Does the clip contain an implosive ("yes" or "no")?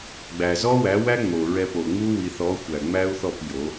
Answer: no